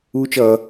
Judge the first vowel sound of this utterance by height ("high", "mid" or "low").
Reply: high